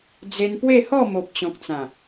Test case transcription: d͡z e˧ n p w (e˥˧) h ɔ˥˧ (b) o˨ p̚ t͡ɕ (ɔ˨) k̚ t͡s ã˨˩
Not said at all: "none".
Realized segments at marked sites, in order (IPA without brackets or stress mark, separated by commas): e˥˧, m, ɔ̃˨